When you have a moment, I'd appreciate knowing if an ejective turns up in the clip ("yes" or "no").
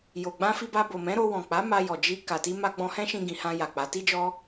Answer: no